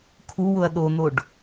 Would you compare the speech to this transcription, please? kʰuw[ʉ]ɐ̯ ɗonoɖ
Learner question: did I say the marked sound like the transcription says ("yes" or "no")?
no